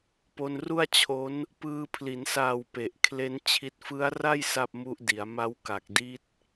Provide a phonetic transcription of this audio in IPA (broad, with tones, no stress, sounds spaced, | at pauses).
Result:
p o˧ n r u˥˩ a̯ t͡ɕʰ o˦˥ n | p ɯː˧ pʰ l i˩˦ n s aː˨˩ w p e˨˩ ʔ kʰ l e˦˥ n t͡ɕʰ i˦˥ t̚ f ɯ˦˥ a̯ r a˥˩ j s a˥˩ p̚ m u˦˥ ʔ d i˩˦ a̯ m a˦˥ w k a˨˩ k̚ d i˦˥ t̚